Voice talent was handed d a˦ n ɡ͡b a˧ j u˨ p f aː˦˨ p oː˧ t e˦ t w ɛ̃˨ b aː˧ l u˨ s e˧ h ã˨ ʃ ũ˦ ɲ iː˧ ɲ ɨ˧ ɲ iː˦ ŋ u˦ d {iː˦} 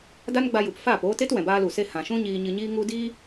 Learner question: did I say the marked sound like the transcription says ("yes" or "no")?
yes